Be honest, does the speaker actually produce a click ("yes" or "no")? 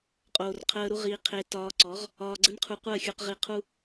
yes